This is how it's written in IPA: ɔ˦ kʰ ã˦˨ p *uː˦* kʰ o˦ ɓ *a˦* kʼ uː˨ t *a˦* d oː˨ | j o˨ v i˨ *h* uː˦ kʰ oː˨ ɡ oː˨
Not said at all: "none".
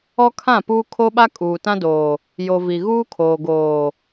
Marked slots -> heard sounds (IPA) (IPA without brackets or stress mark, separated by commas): uː˦, a˦, ã˦, ɣ